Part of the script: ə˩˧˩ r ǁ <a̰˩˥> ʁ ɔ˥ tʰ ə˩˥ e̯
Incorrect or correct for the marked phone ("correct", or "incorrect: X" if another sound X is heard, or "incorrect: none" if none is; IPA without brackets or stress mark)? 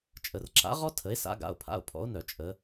correct